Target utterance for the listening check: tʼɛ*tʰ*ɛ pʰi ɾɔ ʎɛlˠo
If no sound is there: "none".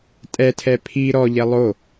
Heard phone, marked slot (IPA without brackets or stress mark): tʰ